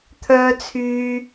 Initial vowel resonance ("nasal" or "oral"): oral